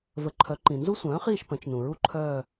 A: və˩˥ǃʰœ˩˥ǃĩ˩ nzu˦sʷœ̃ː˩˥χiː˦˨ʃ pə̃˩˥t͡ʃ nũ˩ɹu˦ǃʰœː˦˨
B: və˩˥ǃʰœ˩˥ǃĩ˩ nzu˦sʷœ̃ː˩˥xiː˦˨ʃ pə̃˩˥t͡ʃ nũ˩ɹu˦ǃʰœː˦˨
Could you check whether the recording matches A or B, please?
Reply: A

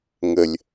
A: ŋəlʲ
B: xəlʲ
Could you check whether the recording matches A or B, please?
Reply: A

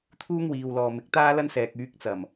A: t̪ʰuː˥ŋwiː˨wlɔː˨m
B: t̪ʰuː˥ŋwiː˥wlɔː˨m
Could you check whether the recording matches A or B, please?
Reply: A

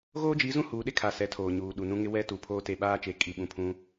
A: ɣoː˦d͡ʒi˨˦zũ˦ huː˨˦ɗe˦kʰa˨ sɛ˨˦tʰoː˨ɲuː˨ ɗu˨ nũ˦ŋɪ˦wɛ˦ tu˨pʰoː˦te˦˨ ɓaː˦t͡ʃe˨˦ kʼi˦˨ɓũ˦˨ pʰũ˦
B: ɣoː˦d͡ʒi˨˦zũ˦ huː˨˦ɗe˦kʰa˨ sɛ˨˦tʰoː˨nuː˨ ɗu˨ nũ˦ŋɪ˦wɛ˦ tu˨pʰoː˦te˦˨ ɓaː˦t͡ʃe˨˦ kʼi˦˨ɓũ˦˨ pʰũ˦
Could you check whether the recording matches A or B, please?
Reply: A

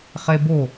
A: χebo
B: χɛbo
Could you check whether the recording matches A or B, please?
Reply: A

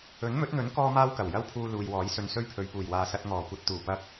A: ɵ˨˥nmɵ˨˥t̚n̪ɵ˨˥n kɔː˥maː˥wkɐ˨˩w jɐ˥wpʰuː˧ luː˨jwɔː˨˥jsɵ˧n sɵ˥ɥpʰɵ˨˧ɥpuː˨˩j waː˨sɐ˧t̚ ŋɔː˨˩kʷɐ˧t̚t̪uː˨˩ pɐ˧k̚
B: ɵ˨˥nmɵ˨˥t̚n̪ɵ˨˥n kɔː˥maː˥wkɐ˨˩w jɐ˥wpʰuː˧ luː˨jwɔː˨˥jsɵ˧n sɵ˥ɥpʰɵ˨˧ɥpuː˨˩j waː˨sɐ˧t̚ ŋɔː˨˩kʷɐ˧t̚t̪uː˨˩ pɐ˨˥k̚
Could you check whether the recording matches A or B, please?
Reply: A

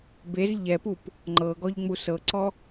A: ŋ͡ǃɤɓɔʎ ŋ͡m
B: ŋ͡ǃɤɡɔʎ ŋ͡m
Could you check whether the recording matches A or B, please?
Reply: B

